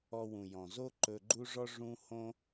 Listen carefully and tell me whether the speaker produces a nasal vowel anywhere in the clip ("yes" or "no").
yes